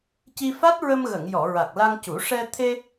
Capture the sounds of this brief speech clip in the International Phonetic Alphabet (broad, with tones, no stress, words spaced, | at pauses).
ci˧fa˦˥t̚ɹə˧mɣə˨˩˨ŋ jɔ˨˩˨ɹa˨˩k̚ la˧ŋcu˨˩˦ ʂɛ˧ t̪ʰe˧